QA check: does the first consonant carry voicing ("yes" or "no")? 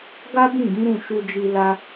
yes